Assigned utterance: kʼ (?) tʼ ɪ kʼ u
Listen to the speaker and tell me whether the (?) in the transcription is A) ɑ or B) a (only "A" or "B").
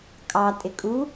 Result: A